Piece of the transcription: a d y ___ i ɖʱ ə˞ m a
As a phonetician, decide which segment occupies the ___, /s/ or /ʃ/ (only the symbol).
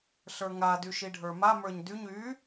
ʃ